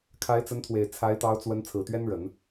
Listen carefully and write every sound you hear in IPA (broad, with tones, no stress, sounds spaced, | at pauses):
kʰ a˧˥ ɪ̯ t͡s ə˧˥ n t̪ʰ w e˨˩ ɪ̯ t͡sʰ a˧˥ ɪ̯ t̪ ɑ˧˥ ʊ̯ t͡s w ə˧˥ n t͡sʰ ɹ̩˨˩ t̪ ɥ ɛ˥ n ɻ ə˨˩˦ n